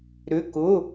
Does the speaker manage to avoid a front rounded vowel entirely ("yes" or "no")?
no